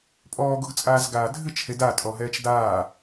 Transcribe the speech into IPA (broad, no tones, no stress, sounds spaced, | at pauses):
pʼ ɔː ɡ o ɡ t͡sʼ aː z ɡ aː dʱ ɨ t͡ʃ h e d a tʼ ɔ ɦ ɛː t͡ʃ d aː